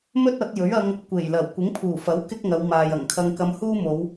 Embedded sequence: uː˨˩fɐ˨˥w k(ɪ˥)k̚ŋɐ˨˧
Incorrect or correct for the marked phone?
correct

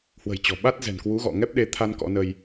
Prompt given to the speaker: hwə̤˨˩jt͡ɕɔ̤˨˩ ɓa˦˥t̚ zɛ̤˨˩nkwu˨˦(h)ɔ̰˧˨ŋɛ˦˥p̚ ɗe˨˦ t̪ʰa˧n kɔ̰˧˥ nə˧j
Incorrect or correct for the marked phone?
incorrect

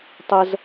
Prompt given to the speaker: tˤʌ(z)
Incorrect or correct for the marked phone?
correct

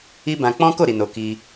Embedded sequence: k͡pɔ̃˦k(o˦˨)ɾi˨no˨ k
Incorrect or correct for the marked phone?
correct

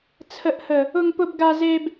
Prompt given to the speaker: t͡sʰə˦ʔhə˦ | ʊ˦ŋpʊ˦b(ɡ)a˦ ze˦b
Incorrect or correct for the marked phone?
correct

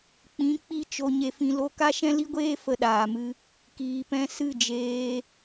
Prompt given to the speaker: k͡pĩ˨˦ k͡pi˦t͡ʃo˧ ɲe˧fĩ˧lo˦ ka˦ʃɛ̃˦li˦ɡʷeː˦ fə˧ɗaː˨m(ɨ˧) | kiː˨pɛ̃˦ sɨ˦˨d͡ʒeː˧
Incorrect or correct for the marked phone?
incorrect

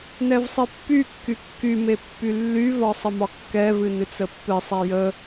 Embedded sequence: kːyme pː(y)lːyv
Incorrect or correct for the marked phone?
correct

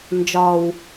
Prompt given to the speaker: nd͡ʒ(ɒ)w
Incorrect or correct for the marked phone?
correct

